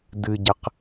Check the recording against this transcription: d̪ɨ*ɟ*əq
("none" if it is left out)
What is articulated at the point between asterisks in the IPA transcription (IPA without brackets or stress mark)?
ɟ